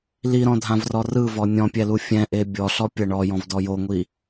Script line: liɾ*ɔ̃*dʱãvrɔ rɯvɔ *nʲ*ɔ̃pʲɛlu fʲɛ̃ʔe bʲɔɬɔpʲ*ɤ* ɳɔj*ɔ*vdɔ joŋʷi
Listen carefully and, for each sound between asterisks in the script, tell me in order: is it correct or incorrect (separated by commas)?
correct, correct, correct, incorrect